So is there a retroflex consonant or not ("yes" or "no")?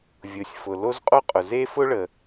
yes